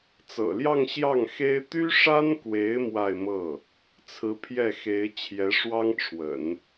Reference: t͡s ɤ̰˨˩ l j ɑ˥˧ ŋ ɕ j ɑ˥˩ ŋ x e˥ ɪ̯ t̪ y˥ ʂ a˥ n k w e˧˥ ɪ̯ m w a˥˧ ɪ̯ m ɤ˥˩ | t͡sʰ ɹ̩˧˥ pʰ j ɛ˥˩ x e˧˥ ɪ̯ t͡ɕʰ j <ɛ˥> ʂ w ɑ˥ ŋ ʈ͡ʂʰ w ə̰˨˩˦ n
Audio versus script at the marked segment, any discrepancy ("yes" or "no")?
yes